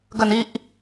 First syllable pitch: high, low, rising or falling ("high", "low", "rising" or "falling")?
low